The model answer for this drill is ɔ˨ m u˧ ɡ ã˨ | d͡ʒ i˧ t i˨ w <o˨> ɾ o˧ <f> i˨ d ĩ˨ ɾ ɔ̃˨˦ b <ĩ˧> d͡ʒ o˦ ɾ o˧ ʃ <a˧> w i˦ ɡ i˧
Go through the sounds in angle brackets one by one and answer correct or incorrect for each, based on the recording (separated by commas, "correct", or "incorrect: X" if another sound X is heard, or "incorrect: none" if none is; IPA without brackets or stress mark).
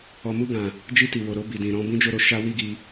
correct, incorrect: b, incorrect: ĩ˦, correct